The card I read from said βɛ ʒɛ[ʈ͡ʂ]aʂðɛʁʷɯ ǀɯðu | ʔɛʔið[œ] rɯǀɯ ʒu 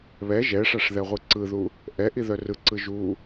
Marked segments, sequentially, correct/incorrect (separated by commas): incorrect, correct